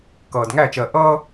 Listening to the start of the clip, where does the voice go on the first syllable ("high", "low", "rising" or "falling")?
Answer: low